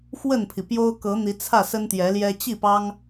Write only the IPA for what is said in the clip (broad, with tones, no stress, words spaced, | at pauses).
xwə˥˨npʰi˩ pjo˦ʊ̯kɤ˨˦ n̪i˨˦t͡sʰä˥˨sə˦n t̪jɛ˨˦ljɛ˦ t͡ɕi˥˨pɑ˦ŋ